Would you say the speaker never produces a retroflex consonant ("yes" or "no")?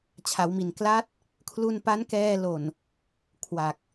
yes